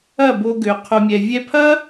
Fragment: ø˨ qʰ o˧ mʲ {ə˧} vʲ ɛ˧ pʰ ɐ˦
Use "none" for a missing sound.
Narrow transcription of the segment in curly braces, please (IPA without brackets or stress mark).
ɛ˧